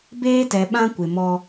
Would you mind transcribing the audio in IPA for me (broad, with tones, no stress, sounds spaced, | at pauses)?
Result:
b eː˦ t ɛ˨ ɓ ã˦ kʷ ɪ˨ m ɔ˦